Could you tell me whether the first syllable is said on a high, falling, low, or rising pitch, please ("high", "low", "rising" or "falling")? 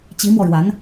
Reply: rising